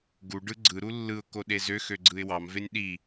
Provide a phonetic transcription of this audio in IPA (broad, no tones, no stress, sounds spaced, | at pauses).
ɡ u ɖ ɯ ɡ͡ǀ ɯ ɾ u lː ɯ ʊ̯ k o ɗ e z ø x ø ɡ͡ǀ ɯ ɪ̯ w ɑ m v e nʲ ɗ i